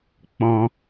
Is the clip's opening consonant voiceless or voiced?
voiceless